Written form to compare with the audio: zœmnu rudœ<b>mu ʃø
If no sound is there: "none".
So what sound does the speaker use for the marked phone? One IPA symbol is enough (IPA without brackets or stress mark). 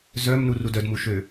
d